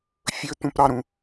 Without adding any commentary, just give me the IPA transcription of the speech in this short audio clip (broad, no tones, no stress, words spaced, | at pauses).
fʲɵt̪ũpɾɑɾũ